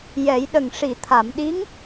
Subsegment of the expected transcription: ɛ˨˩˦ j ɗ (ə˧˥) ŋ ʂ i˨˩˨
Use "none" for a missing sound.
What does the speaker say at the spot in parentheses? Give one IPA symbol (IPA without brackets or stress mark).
ə˨˩